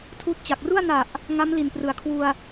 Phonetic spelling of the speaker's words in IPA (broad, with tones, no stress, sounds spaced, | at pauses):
tʰ uː˦˥ t̚ t͡ɕ a˨˩ k̚ r u˥˩ a̯ n a˨˩ ʔ | ŋ a˦˥ m l i˨˩ n p r ɯ˩˦ a̯ kʰ w u˧ a̯